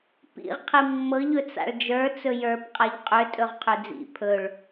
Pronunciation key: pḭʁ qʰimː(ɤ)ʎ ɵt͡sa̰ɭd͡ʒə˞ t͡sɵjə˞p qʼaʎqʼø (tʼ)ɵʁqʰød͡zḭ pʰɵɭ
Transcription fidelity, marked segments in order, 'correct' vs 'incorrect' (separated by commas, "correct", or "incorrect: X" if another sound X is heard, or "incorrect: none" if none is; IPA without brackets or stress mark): correct, correct